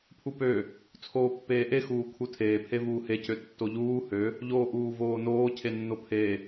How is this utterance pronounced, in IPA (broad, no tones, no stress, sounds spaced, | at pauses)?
pʰ u p ø | t͡sʰ oː pː eː ʔ e x uː kʰ u tʰ eː pʰ e v uː h e c ø tː o ʎ uː h ø | ʎ oː ʔ uː v oː n oː cʰ e nː o pʰ e